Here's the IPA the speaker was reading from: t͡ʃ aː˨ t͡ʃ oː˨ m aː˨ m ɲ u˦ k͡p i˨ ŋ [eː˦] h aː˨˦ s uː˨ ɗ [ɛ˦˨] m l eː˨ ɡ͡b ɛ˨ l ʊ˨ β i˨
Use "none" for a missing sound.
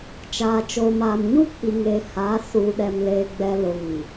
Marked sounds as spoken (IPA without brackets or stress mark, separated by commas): eː˨, ɛ˨